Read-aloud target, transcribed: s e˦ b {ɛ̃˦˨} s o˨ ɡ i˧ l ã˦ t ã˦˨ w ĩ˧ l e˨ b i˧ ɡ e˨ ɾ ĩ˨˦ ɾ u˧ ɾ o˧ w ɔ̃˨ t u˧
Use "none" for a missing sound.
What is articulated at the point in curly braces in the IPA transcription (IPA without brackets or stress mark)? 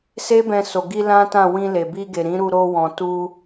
ɛ̃˧